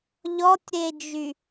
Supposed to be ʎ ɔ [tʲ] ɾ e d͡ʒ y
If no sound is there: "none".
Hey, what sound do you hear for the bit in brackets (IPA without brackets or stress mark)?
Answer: tʲ